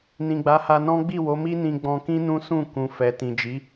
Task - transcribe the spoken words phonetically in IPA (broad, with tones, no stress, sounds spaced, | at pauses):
n ĩ˨ ɡ͡b a˨˦ h a˧ n ɔ̃˦ ɡ͡b i˦˨ w o˨˦ m i˦ n ĩ˧ ɡ͡b ɔ̃˧ k ĩ˦ n ũ˦ s ũ˦˨ k ũ˨ f ɛ˨ t ĩ˨ d͡ʒ i˨˦